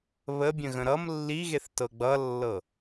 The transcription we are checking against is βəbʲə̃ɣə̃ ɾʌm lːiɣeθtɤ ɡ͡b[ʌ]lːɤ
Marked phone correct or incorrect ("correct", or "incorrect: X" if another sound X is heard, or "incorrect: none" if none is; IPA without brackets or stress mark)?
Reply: correct